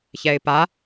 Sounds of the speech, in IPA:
ç ɛ ɪ̯ p a

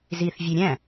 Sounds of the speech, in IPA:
z i θ vʲ e ɾʲ æ̃

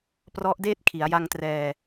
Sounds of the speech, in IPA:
p r ɔ˦˥ ʔ d eː˥˩ t̚ kʰ i˩˦ a̯ j a˧ ŋ t r ɛː˧

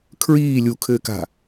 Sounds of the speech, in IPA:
kʰ ɹ iː lʲ u kʰ ɘː k a̤

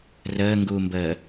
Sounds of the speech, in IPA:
r əː ŋ ɡ uː m b əː

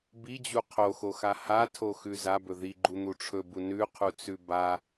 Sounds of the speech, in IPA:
b i d͡ʑ u qʰ o x o x a h a tʰ o x ʉ z a b ɵ ð i ɡ͡ǃ u n̪ u ʈ͡ʂʰ ɵ b u n ʉ qʰ u t͡s ʉ b a

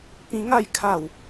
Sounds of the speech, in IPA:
p ĩ˧ ŋ a˥˧ j kʰ a˥˧ w

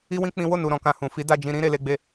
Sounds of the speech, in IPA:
i˦ w ĩ˦ k͡p ĩ˦ w o˦˨ n u˨ ɾ ɔ̃˨ k ã˧ h ũ˨ f i˨˦ d a˦˨ d͡ʒ ĩ˧ ɾ ĩ˦ ɾ e˧ l e˧ ɡ͡b e˧

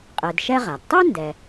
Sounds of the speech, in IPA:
qʼ e˨ d ʃ ɛ˥ ʁ a˩ d tˤ u˥ n d ɛ˨

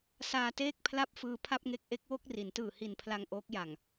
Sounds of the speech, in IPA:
s aː˧ t eː˥˩ k̚ pʰ l a˥˩ p̚ f ɯː˧ pʰ a˥˩ p̚ ŋ e˦˥ k̚ ʔ e˦˥ k̚ w o˥˩ k̚ r i˩˦ n t ɯː˨˩ h i˨˩ n pʰ l a˧ ŋ ʔ oː˦˥ k̚ j a˨˩ ŋ

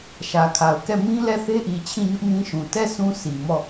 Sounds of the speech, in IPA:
ʃ ä˨ kʰ a˨ ʊ̯ k ɛ˦˨ m ĩ˦ l ɛ˦˨ θ e˦ ʔ i˨ t͡ɕʰ ĩ˦˨ ɲ ʊ˦ ʔ m ĩ˦ ʃ ũ˨ t ɛ˦˨ sʰ ũ˦ sʰ i˨ m ɔ˦˨

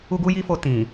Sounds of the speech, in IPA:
u˧ ɡ u˧ j i˧ f o˨ t ĩ˨

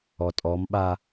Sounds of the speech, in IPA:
ɔ tʼ ɔ m ɓ a

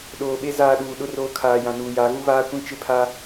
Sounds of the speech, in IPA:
ɗ oː˨ ɓ e˦ z aː˦ ɗ uː˨ ɗ ʊ˦ r oː˦ kʰ aː˨ j ã˨ n uː˨ j a˨˦ ɣ u˦ β aː˦ kʷ ĩ˦ t͡ʃ ɪ˦ pʰ a˦

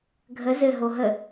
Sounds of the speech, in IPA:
ɡʱ ə z ɘ ɦ o ɦ ə

